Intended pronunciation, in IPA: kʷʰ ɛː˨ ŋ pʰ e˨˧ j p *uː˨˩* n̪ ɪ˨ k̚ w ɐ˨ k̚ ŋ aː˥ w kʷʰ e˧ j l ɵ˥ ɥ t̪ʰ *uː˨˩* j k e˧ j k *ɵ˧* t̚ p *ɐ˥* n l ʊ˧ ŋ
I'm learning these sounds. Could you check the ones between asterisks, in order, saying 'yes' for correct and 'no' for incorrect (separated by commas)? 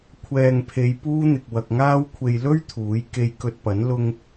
no, no, yes, no